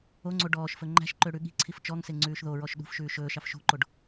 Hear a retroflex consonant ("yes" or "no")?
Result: yes